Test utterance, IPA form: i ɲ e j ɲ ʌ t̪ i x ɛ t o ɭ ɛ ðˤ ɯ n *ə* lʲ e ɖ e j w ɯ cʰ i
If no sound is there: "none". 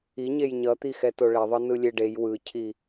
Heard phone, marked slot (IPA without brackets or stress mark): ɯ